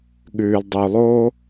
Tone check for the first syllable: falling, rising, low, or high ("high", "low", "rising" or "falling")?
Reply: low